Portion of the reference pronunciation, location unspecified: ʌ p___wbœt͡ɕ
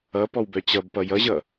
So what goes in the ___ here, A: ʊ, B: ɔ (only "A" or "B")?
B